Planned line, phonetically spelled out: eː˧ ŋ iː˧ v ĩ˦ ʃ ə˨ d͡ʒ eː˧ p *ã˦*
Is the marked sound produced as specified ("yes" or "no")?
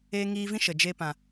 no